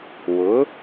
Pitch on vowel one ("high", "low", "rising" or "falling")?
rising